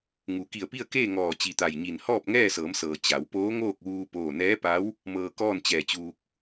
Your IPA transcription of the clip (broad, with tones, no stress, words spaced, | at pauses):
ŋu˩˧ ki˧˩ə̯pi˥˨ə̯keː˥˨ ŋɔː˧˩t͡ɕi˧˩ t̪a˧˩jɲi˧˩n hɔː˥˨p̚ŋɛː˥˨sɤː˩˧msɤː˩ t͡ɕa˩˧w poː˧˥ŋoː˥˨k̚ʋuː˧ poː˥˨ nɛː˧˥pa˧˥w | mɤː˧kɔː˥˨n t͡ɕɛː˧˩t͡ɕuː˧k̚